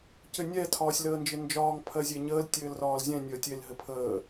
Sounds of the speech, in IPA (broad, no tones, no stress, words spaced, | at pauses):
cɘnʲɛ tʰɒːsʲləːnd͡ʒɘnd͡ʒɒːŋ pʰɜzʲeɲəːl tʲɘːlrɒːlzʲɛ̃ nʲəːtʲel ɦɘpʰəː